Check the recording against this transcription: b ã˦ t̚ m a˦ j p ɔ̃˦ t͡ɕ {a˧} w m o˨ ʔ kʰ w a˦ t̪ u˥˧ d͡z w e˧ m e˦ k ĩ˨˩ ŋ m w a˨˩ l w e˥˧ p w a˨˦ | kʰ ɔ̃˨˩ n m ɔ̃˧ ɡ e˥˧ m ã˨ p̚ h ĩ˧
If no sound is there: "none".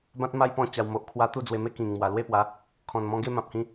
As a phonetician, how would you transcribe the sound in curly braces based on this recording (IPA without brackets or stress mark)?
a˧